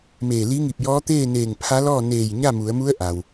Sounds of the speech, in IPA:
meː˧˩ li˧˥ŋi˧˩p̚jɔː˧˥ t̪eː˥˨neː˧˩ŋ pʰa˧˥lɔː˥˨ neː˧˩j ɲa˥˨mu˩˧ə̯mu˧˥ə̯ ʔa˩w

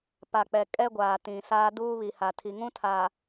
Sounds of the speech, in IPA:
pa˨k͡pɛ˨ kʼɛ˦ɡʷaː˨ tĩ˨saː˦duː˦ βi˨ha˨ tʰi˨ŋũ˦tʰaː˨

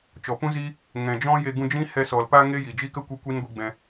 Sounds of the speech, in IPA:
t͡ʃɔ˨pũ˦ziː˦ | ŋɛ̃˨ d͡ʒɔ̃˦je˧ ɡũ˧d͡ʒĩ˦ hɛ˦ sɔ˨l pa˦ŋe˦ jiː˨d͡ʒiː˦kə˦kʷi˧ kʷi˦n ɡʷi˧ɡ͡bɛ̃˧

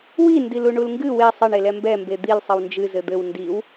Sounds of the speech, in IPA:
wi ndiluɳulŋɡɨ we sˤɘɳ elɛmbɛ mbed̪il sˤɘwnd͡ʒɨ zɘd̪ɘw ndiw

